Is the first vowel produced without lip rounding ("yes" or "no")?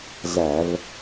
yes